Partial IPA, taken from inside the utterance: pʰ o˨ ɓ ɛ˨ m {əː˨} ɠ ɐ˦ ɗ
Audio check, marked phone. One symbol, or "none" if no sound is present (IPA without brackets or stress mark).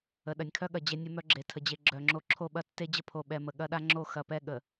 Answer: ə˨